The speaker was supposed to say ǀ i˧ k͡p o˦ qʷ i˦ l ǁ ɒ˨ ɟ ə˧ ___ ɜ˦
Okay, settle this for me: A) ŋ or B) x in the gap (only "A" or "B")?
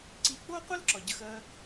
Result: B